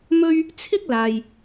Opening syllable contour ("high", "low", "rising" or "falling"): high